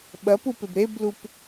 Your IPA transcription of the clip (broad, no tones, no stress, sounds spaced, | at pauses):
ɓ ɐ p u p e b ɾ e b l u p